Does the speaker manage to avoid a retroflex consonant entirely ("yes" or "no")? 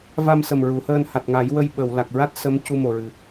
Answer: yes